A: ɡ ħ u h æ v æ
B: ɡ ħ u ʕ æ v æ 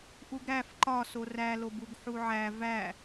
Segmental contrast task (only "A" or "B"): B